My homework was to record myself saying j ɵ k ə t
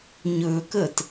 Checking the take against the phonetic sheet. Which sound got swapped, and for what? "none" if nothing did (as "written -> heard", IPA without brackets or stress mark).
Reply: j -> ɲ